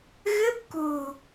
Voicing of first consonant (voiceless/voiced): voiced